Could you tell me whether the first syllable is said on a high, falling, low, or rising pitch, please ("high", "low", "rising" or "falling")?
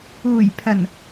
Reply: low